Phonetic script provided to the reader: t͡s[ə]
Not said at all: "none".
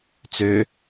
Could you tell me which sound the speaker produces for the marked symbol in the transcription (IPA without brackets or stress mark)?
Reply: ø